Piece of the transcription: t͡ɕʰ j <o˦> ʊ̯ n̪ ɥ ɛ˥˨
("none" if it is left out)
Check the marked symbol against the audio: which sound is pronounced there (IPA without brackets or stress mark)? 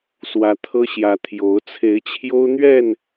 o˦